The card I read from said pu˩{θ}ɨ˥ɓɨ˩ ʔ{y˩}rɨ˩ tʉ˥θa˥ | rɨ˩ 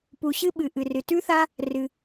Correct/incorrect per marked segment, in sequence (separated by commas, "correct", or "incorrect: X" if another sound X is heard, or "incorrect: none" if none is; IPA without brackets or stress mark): incorrect: ɕ, incorrect: ɨ˩